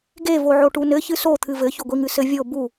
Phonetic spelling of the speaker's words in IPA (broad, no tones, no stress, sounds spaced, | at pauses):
ɡ e v o ʕ o ʈ u n ɘ ç ɨ s o t̪ʰ ɨ v ɘ ç o ɡʷ i ŋ ɨ s ɘ vʲ o b u